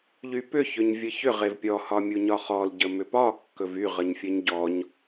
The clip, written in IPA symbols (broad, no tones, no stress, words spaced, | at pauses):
ʎypʏçʏɲ vʲəçʏʁ evpʲɔ hɒmʲuɲɒχɔl ɟəmʏpɒ kːɵvyʁəɲfʲəɲ ɟɔɲ